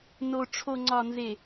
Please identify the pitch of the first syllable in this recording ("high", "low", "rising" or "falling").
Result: low